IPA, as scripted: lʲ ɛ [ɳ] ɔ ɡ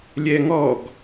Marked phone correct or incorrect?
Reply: incorrect